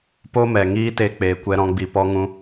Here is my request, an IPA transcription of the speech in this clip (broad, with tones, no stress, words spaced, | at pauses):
po˦mɛ˨ŋiː˦ te˦k͡peː˧ kʷɛ˦ɾɔ̃˦ ɡ͡bi˧pɔ˦ŋũ˦